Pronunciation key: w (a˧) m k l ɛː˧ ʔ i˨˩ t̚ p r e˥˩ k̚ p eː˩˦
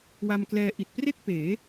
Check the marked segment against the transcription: correct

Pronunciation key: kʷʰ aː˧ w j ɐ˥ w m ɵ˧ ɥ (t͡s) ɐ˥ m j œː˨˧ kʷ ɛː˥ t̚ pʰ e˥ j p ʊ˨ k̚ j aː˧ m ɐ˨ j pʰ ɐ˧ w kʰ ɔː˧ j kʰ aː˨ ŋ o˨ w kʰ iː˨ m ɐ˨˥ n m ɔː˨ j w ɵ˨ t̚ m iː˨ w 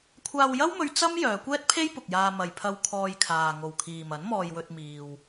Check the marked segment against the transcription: correct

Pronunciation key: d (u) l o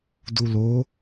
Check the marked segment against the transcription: correct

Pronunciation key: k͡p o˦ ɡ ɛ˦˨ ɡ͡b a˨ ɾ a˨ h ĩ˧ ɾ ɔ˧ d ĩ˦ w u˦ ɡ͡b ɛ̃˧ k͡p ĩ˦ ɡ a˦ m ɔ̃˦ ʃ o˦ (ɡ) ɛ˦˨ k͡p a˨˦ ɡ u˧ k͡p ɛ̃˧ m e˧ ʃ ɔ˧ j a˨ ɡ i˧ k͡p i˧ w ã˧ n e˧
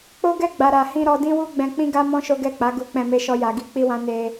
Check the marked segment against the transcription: correct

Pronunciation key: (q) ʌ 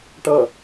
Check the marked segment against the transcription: incorrect: ʈ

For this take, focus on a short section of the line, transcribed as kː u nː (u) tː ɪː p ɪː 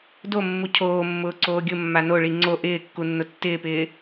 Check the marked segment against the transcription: incorrect: ʊ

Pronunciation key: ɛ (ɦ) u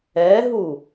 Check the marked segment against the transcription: correct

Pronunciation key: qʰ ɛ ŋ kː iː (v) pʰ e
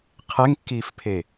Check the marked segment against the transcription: incorrect: f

